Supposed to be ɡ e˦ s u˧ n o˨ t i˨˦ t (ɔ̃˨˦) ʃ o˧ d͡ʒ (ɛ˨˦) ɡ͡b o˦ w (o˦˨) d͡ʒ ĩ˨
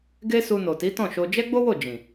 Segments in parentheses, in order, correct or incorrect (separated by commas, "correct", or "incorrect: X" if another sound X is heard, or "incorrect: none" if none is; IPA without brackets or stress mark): incorrect: ɔ̃˦˨, incorrect: ɛ˦, correct